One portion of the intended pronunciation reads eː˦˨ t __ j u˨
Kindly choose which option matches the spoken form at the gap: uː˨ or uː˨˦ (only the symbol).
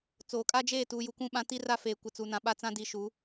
uː˨